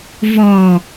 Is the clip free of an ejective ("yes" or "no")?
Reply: yes